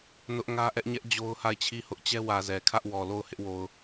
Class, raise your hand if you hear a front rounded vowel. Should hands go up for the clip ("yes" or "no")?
no